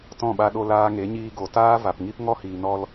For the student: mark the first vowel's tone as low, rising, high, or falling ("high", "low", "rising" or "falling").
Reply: falling